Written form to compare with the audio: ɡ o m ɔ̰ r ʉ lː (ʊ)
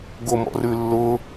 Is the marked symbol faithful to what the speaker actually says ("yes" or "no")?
yes